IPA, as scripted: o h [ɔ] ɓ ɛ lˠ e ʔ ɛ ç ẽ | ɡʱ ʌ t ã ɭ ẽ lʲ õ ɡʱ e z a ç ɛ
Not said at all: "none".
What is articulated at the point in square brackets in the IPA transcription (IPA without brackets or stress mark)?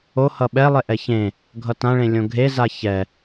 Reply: ʌ